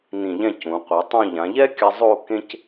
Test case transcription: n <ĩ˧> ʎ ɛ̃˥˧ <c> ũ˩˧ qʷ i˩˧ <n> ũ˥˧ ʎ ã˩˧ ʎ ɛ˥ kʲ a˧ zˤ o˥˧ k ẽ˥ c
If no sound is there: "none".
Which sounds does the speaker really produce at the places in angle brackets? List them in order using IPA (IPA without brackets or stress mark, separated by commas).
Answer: ĩ˧˩, c, tˤ